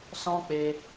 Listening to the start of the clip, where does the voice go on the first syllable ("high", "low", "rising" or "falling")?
high